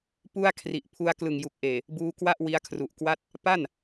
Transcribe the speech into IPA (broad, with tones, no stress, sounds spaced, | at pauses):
p u˥˩ a̯ kʰ r i˨˩ ʔ pʰ u˧ a̯ k l ɯ˨˩ ŋ j u˨˩ k̚ ʔ eː˨˩ | b uː˧ k w a˥˩ ʔ w i˦˥ a̯ kʰ r u˨˩ ʔ k w a˥˩ t̚ | p a˥˩ n